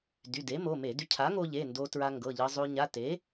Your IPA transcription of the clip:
d y˩˧˩ d e˩˥ m o˩˧˩ m e˧˩˧ d y˧ cʰ a˩˥ ŋ o˧ ʎ e˩˧˩ n d o˧ t ɹ a˧ ŋ ɡ ɤ˩˧˩ ʎ ɤ˧ zˤ o˧ ɲ a˩˧˩ t e˩˥

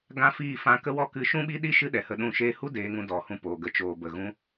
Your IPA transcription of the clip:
ɡ ã˦ f iː˦˨ f ã˧ k ə˦ w ɔ˦ k ɨ˨˦ ʃ ũ˦ ɓ i˦ ɗ i˦ ʃ ɨ˦ ɗ ɛ˨ h ə˧ ɗ ũ˦˨ ʃ eː˦ h u˦ d eː˨˦ ŋ ũ˧ d ɔ˨ h ũ˧ p oː˨ ɡ ə˧ t͡ʃ oː˨ b ə˨ ɣ ũ˧

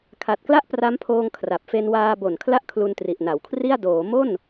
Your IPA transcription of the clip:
kʰ a˨˩ t̚ k l a˥˩ ʔ p r a˦˥ m pʰ oː˧ ŋ kʰ r a˨˩ p̚ f e˧ n w aː˧ b o˨˩ n kʰ l a˥˩ ʔ kʰ l u˧ n t r i˨˩ ʔ n a˩˦ w kʰ r i˥˩ a̯ d oː˩˦ m o˥˩ n

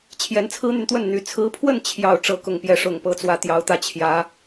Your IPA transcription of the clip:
t͡ɕʰ j ɛ˧˥ n t͡sʰ ɹ̩˥ n̪ y˨ n t̪ w ə˥˩ n n̪ y˧˥ t͡sʰ ɹ̩˧˥ pʰ w ə˥˧ n t͡ɕʰ j ɑ˥˧ ʊ̯ ʈ͡ʂ ɤ˥˧ k ʊ˥˧ ŋ p j ɛ˥˩ ʂ ʊ˨˩ ŋ p ɤ˧˥ t͡s w ä˧˥ t̪ j ɑ˧˥ ʊ̯ t̪ ä˥˩ t͡ɕʰ j ä˧˥

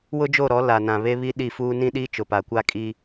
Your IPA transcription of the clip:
w ʊ˦ d͡ʒ o˦˨ ɾ ɔ˨˦ l a˨ n ã˨ β e˦ β i˦ ɗ i˦˨ f uː˦ n ĩ˦ ɗ iː˦ t͡ʃ ʊ˨ p a˨ kʷ a˦ kʼ i˦

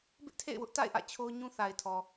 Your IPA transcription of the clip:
b ɪ˦ ʔ tʰ ḛ˦˨ ɪ̯ w ʊ˦ ʔ t a̰˦˨ ɪ̯ ʔ ä̰˦˨ t͡ɕʰ o˦ ʊ̯ ɲ ũ˦ θ a˨ ɪ̯ tʰ ɔ˨

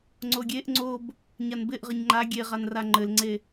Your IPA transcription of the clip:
ŋ͡ǀ o ɡʲ e ʔ ŋ͡ǀ o b | ɲ a n b ɪ ʔ ʁ ɘ ɲ ŋ͡ǃ a ɡʲ e ʁ a n r a ŋ͡ǃ ɘ l ŋ͡ǀ e

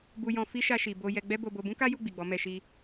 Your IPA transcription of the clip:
b u˧ j ɔ̃˧ f i˦ ʃ a˧ ʃ i˨ b o˧ j ɛ˧ ɡ͡b ɛ˦ b o˧ b o˧ b ũ˦ k a˦ j u˦˨ ɡ͡b i˨ ɡ͡b ɔ˨˦ m ɛ˧ ʃ i˦

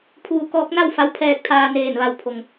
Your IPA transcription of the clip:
pʰ uː˧ k ɔː˧˥ k̚ n a˥˨ w f a˧˥ w pʰ ɛː˧ k̚ t̪ʰ aː˧ n eː˧˩ n ʋ a˧˩ w pʰ o˩ ŋ

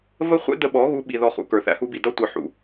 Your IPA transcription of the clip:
v ə˦ χʷ ɛ̰˦ d ə˧ ɓ ɔ˨˦ ɣ u˧ ɓ i˨ ð ɔ˨ χ ṵ˨ k ə˞˨ θ æ̰˧ h u˧ b i˨ d ʌ˧ tʷ ʌ˨ ħ ṵ˨

